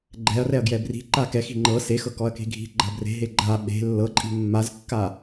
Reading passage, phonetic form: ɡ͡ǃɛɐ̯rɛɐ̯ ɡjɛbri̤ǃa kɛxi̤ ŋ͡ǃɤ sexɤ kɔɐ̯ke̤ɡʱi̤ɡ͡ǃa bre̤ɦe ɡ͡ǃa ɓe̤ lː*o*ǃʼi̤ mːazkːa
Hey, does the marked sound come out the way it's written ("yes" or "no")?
no